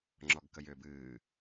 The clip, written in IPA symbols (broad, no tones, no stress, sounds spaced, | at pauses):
ŋ͡ǁ ɔ ɡ k ə j ʏː b ɨː